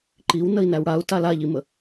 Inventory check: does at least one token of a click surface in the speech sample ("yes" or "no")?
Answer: yes